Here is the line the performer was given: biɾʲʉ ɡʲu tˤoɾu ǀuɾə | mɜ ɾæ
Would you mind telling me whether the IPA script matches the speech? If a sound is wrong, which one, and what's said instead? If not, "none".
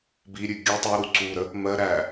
none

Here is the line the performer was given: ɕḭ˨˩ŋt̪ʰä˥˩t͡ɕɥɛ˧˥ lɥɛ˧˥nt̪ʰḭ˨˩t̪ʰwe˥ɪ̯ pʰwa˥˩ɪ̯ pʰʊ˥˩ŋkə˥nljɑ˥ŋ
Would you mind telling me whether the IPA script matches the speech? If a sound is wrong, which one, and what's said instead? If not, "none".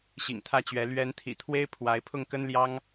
a˥˩ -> a˧˥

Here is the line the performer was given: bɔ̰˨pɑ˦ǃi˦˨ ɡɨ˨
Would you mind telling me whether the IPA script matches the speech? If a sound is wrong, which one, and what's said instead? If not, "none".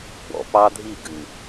ǃ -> dʱ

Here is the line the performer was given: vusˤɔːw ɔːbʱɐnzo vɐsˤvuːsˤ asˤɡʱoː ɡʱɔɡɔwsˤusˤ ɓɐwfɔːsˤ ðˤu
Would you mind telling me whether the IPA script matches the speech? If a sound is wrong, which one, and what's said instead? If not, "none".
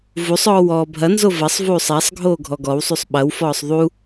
none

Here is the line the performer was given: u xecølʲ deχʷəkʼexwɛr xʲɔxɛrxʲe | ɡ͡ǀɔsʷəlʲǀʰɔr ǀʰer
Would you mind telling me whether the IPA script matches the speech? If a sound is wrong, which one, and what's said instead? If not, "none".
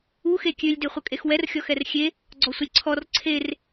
c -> kʲ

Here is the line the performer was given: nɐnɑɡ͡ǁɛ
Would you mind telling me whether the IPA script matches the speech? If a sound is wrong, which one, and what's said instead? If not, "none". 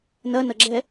ɑ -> ɐ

